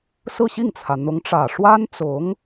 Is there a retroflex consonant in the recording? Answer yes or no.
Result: yes